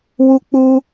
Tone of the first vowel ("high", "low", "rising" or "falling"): high